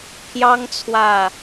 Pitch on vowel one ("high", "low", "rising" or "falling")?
high